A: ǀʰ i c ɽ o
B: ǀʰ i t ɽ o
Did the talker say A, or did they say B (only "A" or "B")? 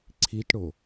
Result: B